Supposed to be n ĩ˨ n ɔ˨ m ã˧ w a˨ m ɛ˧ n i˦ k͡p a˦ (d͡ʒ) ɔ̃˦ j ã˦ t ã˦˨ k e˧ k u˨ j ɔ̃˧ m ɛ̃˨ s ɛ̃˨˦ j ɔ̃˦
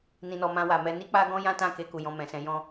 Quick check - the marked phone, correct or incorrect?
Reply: incorrect